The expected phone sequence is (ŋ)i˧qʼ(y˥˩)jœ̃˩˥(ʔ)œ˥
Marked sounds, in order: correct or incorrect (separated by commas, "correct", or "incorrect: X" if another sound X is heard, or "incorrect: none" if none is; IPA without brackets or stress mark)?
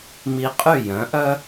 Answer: incorrect: m, correct, correct